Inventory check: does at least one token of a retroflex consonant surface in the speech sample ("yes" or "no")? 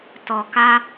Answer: no